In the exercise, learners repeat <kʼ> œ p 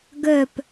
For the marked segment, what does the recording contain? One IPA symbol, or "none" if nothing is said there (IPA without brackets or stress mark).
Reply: ɡ